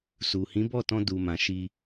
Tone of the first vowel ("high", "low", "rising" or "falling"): low